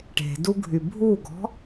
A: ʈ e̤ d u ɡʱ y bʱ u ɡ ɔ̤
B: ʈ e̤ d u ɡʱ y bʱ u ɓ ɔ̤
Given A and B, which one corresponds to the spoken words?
A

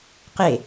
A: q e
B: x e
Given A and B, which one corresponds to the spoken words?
A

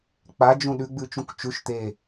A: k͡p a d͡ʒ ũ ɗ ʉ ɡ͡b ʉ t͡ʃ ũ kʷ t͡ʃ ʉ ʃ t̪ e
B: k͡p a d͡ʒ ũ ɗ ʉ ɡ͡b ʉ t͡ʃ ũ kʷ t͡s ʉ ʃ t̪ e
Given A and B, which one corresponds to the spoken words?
A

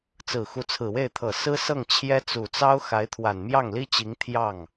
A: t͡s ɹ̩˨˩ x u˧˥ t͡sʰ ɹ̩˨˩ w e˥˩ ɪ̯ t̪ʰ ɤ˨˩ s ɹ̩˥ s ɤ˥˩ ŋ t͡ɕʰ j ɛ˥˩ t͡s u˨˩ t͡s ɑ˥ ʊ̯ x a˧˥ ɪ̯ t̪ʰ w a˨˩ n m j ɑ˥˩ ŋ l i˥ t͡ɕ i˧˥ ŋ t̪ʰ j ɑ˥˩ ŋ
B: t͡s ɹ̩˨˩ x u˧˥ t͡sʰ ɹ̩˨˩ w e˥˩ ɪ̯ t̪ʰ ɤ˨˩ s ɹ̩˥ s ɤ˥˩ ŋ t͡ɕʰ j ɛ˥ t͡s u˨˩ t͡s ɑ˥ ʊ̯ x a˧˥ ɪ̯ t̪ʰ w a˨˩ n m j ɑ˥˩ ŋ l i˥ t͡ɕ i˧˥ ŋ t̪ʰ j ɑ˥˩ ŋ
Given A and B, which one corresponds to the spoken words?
B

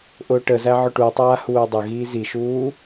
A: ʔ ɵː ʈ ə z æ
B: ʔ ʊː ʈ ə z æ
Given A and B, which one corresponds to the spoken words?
B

